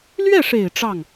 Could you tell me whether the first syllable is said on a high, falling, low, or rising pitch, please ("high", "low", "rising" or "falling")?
falling